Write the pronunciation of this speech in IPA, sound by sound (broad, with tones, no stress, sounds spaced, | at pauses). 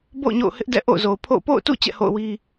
b o̰˦˨ ʊ̯ ɲ o̰˦˨ ʊ̯ h ɪ˦ ʔ d ɛ̰˦˨ ʔ o̰˦˨ ʊ̯ z o˨ ʊ̯ pʰ o̰˦˨ ʊ̯ p o̰˦˨ ʊ̯ t ṵ˦˨ t͡ɕ ɛ̰˦˨ h o̰˦˨ ʊ̯ w i˦